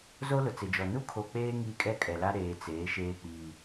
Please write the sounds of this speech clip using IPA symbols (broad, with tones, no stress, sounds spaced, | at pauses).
z o˦ l ʊ˨ t͡s ɪ˨ d͡ʒ ɔ˨ n u˦ kʰ o˨ k͡p eː˦ ŋ iː˦ kʼ ɛ˦ kʼ ɛ˨ l a˦ ɾ eː˨ t͡s eː˨˦ ʃ eː˦ k͡p iː˦